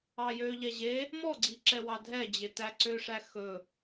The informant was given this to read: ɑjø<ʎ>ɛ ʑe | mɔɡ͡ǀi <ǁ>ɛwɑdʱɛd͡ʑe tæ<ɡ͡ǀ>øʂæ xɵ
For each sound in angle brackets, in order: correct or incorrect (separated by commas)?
correct, correct, incorrect